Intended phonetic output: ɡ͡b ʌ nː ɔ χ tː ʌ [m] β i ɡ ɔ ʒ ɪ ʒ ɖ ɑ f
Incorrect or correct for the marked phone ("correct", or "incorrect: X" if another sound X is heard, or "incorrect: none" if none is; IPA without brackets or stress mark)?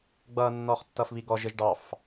incorrect: f